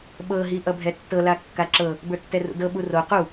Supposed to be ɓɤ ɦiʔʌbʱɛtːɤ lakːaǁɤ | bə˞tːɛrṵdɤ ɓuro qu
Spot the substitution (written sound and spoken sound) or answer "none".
none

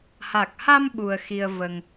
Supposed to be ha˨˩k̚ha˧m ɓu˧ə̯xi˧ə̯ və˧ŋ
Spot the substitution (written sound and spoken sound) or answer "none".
none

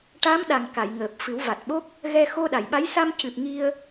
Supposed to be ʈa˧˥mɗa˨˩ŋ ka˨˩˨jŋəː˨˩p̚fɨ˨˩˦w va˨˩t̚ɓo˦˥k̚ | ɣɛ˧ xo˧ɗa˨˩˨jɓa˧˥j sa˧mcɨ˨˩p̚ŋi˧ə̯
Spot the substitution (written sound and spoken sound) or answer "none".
none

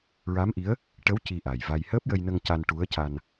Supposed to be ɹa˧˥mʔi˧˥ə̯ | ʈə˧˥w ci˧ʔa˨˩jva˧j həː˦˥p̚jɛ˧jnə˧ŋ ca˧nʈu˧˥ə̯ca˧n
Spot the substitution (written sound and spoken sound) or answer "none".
ɛ˧ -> ə˧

